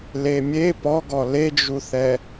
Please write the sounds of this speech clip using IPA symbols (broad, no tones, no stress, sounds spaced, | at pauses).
l e mʲ e p ɔ ɡ ɔ l e d͡ʒ u θ ɛ